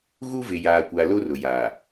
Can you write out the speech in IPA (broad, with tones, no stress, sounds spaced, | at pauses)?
ɣ u˦ v ɪ˨ j aː˨ kʷ a˨ l o˦ r ʊ˨ j aː˨